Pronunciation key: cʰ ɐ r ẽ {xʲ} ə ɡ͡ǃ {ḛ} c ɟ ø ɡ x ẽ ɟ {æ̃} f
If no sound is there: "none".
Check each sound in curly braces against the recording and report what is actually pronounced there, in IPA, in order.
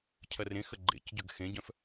x, ḛ, œ̃

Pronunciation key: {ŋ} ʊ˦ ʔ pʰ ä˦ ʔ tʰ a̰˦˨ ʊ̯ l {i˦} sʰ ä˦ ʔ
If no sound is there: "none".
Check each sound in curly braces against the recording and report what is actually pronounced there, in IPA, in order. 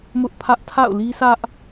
m, i˦

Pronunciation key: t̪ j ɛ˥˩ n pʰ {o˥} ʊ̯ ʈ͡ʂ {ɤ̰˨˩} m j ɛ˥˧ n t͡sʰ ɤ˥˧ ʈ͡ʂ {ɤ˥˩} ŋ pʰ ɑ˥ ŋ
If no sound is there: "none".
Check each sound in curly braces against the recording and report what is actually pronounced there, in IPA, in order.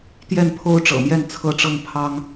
o˥, ɤ̰˨˩, ɤ˥˩

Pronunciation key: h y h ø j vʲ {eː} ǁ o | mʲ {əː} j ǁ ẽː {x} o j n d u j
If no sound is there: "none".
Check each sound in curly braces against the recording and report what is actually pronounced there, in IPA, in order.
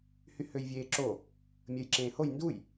eː, əː, h

